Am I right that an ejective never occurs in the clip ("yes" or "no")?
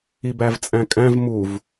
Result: no